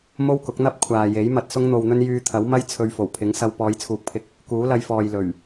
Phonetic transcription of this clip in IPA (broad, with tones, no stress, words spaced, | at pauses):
mo˥wkʊ˨˥k̚ n̪ɐ˥p̚ kʷʰaː˨je˨˥j mɐ˧t̚sʊ˥ŋn̪o˧wn̪ɵ˥n jyː˧t̪ʰɐ˨˥wmɐ˥j t͡sʰɵ˧ɥfo˨˩wpʰɪ˨˥ŋsɐ˧w pɔː˨˧jt͡sʰuː˨k̚pʰɪ˧k̚ | kuː˨˥lɐ˧jfɔː˨j lɵ˨˩ɥ